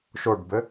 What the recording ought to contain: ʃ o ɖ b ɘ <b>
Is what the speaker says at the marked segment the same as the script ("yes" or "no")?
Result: no